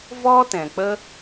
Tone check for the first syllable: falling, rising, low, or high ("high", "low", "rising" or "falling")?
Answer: high